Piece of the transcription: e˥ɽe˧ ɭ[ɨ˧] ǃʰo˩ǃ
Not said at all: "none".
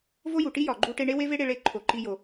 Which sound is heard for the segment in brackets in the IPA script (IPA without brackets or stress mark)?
e˧